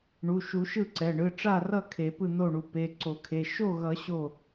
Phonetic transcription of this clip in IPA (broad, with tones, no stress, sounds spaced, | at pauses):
ɳ u˩˧˩ ʃ u˨˩˦ ʃ ɯ˥˩ ǀ ɛ˩˧˩ ɳ ɯ˩˧˩ ʈ͡ʂ a˥˩ r ʌ˥˩ kʰ e˨˩˦ p ɯ˥˩ n̪ o˥˩ ɳ u˩˧˩ p e˩˧˩ ǀ o˨˩˦ kʰ e˩˧˩ ʃ o˥˩ ɣ ʌ˨˩˦ ɕ o˥˩